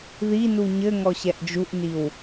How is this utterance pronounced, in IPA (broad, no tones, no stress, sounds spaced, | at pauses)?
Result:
ð i n u ɲ ɘ ŋ ɔ ɕ ɛ ʔ d͡ʒ u ʔ n i w